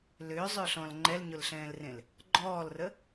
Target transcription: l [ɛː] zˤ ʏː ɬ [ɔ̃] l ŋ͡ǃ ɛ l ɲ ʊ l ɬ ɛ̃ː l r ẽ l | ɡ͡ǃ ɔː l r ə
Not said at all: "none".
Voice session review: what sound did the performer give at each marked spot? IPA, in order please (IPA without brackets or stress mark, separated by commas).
ʏː, ɔ̃